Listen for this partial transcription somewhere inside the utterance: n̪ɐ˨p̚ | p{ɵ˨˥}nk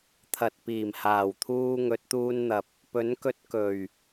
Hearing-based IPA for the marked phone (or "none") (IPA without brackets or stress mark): ɵ˨˥